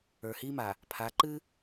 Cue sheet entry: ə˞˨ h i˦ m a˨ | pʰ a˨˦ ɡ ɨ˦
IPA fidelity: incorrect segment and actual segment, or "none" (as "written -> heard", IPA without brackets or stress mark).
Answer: ɡ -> ǃ